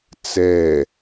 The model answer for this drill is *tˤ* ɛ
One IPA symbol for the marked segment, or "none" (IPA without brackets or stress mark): t͡s